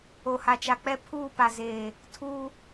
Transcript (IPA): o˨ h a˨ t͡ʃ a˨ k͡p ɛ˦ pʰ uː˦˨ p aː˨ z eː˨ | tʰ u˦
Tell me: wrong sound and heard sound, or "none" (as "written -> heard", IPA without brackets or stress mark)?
aː˨ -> a˨